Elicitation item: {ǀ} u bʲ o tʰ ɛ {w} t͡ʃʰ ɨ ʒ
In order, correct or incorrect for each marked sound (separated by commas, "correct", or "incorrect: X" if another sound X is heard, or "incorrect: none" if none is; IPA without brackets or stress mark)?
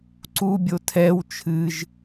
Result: correct, correct